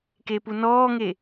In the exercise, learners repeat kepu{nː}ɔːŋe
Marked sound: incorrect: n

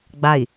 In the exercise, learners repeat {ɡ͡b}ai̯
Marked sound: correct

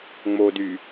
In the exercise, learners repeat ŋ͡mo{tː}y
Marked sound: incorrect: d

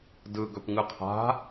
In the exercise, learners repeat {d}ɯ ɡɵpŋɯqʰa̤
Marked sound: correct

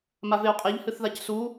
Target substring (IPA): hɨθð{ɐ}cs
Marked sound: incorrect: a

